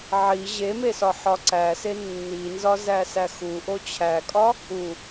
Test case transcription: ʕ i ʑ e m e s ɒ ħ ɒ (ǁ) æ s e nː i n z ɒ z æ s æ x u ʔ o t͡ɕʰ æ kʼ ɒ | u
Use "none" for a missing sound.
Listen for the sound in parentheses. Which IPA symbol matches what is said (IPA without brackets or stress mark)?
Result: ǀ